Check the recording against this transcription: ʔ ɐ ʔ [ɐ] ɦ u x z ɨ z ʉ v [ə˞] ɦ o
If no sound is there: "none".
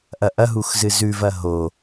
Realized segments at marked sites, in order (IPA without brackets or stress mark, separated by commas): ɐ, ɐ